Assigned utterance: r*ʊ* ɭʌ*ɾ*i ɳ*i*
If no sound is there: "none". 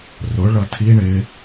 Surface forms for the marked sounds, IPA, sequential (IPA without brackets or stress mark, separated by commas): ʊ, tʰ, ɪ